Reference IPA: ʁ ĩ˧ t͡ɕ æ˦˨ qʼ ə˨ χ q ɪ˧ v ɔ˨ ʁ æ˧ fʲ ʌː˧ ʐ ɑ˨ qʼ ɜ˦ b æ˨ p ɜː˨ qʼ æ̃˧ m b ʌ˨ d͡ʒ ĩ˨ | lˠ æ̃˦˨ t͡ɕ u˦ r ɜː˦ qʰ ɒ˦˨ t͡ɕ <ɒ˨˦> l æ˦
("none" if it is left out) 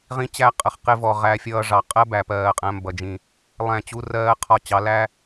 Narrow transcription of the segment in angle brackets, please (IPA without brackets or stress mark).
ɑ˨˦